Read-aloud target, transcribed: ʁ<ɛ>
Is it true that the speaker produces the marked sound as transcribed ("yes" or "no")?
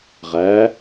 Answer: no